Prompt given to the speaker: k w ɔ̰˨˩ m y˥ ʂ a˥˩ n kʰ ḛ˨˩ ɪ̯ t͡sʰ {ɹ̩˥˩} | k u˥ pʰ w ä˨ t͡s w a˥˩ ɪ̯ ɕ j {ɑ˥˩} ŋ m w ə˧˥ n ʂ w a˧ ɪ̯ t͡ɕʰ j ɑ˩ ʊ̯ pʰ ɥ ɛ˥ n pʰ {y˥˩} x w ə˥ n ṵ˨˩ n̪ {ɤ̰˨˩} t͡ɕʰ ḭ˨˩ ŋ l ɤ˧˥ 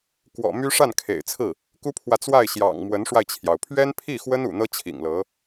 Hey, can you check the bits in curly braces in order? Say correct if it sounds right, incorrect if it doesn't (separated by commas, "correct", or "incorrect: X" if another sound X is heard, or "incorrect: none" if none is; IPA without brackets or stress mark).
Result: correct, incorrect: ɑ̰˨˩, incorrect: i˥˩, incorrect: ɤ˥